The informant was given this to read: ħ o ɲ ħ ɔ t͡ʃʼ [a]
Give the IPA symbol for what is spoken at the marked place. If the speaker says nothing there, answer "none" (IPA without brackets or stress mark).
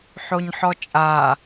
a